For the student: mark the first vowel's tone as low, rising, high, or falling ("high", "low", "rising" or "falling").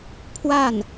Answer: falling